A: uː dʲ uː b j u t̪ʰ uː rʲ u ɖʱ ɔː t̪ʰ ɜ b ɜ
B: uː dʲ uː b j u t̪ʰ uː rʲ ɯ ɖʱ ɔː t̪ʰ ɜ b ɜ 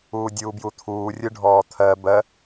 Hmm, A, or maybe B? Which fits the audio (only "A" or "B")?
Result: B